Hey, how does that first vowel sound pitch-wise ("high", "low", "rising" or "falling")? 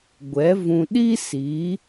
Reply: rising